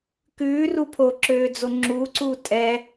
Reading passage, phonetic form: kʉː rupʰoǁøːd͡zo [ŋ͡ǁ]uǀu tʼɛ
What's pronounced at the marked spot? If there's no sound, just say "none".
ŋ͡ǁ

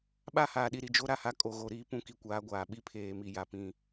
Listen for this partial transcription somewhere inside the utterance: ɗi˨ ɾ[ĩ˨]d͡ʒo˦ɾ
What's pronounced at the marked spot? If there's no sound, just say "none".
i˨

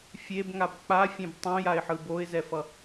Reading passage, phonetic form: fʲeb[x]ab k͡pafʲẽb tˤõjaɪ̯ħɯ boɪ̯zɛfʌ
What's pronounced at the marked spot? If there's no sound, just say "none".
ŋ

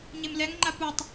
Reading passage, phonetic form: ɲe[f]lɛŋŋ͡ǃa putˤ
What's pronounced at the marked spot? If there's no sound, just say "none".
m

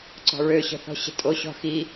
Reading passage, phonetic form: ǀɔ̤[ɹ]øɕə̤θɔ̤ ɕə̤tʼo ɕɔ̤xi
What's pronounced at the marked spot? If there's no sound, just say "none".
ɹ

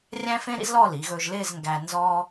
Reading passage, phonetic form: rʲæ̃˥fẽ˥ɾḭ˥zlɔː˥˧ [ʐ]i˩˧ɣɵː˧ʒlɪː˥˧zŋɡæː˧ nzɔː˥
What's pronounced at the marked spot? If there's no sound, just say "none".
l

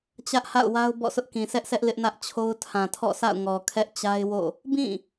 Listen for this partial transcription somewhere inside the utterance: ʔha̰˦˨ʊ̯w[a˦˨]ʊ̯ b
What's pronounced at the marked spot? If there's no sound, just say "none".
a˦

